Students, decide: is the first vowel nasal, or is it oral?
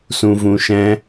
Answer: nasal